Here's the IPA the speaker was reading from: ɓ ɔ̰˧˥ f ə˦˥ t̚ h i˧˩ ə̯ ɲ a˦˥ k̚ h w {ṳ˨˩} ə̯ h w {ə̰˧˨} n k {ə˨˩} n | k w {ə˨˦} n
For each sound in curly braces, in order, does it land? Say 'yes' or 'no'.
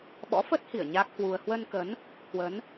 no, no, no, yes

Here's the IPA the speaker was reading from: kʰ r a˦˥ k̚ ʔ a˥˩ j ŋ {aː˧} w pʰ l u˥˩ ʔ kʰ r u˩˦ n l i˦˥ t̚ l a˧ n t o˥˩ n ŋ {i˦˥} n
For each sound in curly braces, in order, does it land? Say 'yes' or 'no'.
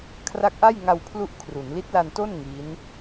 no, yes

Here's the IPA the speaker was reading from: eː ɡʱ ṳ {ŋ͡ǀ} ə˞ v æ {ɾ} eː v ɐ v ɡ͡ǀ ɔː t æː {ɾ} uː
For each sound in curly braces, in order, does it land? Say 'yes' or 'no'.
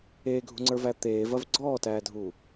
yes, no, no

